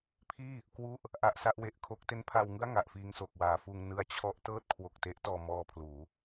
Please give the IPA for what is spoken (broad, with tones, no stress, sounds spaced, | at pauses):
pʰ iː˥˩ | k w u˥˩ ʔ | ʔ a˦˥ ʔ s a˦˥ ʔ w e˨˩ ʔ kʰ o˦˥ k̚ t e˦˥ n pʰ a˧ w ŋ ɯ˥˩ a̯ ŋ a˨˩ ʔ f iː˧ ŋ s o˨˩ k̚ w aː˩˦ f uː˧ ŋ n ɯ˦˥ a̯ t͡ɕʰ ɔ˦˥ ʔ t ɤː˥˩ t̚ kʰ w o˨˩ k̚ t e˦˥ ʔ t ɔː˧ m ɔː˧ pʰ l uː˩˦